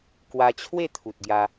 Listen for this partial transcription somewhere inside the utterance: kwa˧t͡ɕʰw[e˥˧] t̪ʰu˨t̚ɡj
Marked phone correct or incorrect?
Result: correct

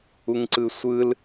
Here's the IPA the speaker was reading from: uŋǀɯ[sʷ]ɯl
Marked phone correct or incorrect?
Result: correct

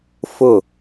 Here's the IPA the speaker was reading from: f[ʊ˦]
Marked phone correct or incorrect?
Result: incorrect: ʊ˦˨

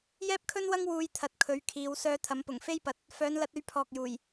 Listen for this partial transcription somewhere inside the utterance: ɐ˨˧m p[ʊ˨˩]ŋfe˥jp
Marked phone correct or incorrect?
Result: correct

